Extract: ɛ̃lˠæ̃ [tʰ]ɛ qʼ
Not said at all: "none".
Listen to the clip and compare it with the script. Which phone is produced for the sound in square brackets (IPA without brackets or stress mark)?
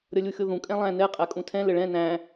n